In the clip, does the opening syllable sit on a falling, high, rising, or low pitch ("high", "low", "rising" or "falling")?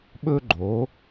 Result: high